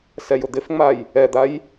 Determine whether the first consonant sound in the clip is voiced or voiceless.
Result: voiceless